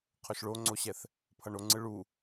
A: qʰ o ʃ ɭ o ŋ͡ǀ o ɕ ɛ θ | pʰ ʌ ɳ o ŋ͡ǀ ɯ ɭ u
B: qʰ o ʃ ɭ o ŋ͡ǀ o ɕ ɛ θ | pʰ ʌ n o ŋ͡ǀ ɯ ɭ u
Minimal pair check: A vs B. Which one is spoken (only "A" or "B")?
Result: A